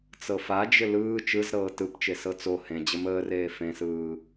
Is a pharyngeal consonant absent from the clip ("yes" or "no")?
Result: yes